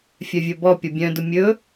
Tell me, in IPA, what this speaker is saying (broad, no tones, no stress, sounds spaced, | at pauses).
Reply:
fʲ œ vʲ ɵ b ɔ pʲ ʌ bʲ œ̃ d ʊ mʲ ɵ